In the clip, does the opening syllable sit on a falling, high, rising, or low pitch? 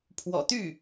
low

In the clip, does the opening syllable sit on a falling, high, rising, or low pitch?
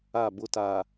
falling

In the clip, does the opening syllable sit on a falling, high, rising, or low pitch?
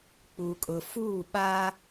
low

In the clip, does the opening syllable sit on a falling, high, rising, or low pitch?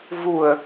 low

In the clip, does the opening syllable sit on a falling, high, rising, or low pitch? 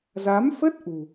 rising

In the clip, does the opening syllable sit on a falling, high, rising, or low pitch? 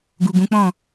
low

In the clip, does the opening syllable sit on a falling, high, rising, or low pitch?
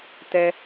low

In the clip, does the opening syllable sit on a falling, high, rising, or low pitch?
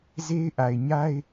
high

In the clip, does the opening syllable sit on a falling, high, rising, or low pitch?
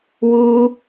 high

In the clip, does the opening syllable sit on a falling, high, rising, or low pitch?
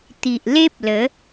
low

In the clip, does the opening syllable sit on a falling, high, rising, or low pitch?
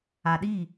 low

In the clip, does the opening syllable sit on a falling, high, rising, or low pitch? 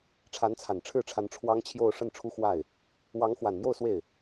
rising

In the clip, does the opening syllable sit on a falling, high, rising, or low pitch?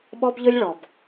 high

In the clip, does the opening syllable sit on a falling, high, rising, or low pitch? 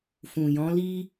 low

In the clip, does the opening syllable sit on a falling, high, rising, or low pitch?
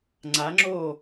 rising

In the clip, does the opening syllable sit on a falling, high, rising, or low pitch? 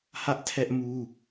high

